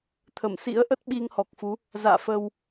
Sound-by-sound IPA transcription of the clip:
t̪ʰ ə˧˩ m s ḭ˧˥ ə̯ ʔ ə˦˥ t̚ ɓ i˧ ŋ h ɔ˨˩ k̚ f u˨˦ | z a̰ː˧˨ f ə˧ w

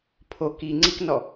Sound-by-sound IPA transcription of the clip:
pʰ o k i ŋ͡ǀ i k n ɔ

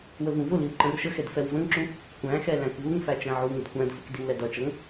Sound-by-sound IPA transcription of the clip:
w ə v ũ v ʊ l i w ǃ ə̃ r ʃ ə x ɛ d f ɛ w v ə̃ ŋ ǁ ũ | kʷ æ̃ x ɛ l æ̃ k v u ŋ f æ t͡ʃ æ̃ ʕ u ŋ ʊ d kʷ æ̃ d f ə k d i w l ɛ d ʌ t͡ʃ ʌ ŋ

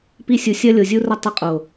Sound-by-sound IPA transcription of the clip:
p i˦ sʲ u˨ sʲ ɐ˦ lʲ o˨ zʲ u˦ r ɐ˦ tˤ ɘ˦ qʼ o˨

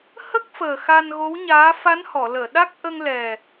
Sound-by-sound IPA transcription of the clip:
h ə˦˥ k̚ f əː˨˩ x a˧ n ɣ o˧˥ w ɲ aː˧˥ f a˧˥ n h ɔ˨˩˨ l əː˨˩˨ ɗ a˦˥ k̚ ʔ ə˧ ŋ l ɛ˨˩

